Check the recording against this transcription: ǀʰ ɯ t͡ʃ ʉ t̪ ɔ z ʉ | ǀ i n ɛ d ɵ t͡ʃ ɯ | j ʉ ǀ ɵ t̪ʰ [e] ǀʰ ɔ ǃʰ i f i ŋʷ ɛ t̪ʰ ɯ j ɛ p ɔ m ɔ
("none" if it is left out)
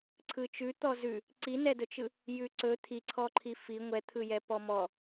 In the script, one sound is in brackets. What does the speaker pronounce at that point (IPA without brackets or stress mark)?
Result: i